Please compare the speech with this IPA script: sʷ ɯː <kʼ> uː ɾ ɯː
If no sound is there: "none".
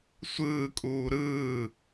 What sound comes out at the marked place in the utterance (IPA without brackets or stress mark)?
kʼ